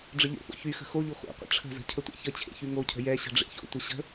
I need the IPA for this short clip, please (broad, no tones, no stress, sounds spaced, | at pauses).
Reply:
ɖ͡ʐ ə ʎ o̰ f o̰ ç y x ə̤ x o ʎ o x o̰ qʷ ə̰ ʈ͡ʂʰ ə̤ z ə̤ cʰ ə tʷ ḛ ç ə t͡ɕʰ ḛ ç y ŋ o cʰ ə̤ j ɛ ɕ ə̤ ɖ͡ʐ ḛ ç o̰ tʷ ə ɕ ə̤